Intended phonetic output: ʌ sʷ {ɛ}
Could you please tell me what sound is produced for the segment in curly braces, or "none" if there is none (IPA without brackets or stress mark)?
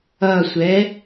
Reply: ɛ